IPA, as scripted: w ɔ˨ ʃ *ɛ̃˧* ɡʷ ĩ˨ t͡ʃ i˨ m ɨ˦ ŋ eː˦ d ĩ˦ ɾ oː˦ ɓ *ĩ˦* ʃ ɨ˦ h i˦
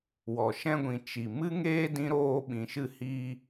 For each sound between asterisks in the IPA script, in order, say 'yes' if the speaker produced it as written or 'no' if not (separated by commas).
yes, no